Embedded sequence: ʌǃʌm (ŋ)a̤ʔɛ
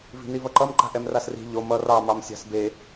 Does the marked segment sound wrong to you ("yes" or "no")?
yes